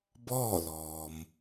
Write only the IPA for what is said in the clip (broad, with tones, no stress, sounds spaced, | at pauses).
b ɔː˥˨ l ɔː˩ m